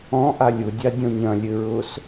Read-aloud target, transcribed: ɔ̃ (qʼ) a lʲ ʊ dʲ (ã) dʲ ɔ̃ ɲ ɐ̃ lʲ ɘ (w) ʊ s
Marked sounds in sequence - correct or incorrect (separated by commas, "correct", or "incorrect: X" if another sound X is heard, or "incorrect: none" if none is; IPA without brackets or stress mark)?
incorrect: ʔ, incorrect: a, incorrect: ɹ